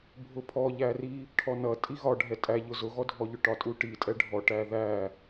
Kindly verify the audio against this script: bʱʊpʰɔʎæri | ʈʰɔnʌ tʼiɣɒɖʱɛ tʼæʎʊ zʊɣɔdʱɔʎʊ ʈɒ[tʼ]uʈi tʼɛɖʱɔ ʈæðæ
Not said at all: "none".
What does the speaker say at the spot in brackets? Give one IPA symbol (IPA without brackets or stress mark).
tʼ